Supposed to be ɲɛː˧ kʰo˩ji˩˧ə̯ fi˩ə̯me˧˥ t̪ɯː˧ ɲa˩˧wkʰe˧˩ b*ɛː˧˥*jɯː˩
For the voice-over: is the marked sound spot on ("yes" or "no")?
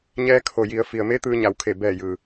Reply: no